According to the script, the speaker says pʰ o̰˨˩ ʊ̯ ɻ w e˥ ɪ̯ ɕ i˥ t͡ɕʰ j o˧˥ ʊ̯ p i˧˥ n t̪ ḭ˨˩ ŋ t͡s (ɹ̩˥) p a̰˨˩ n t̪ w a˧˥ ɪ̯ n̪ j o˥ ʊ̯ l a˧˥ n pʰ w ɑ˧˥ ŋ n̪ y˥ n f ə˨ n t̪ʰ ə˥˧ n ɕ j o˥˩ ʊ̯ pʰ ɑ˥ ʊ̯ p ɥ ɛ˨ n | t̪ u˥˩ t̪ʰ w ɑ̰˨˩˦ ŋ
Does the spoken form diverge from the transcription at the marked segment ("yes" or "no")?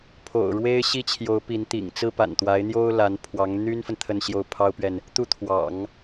no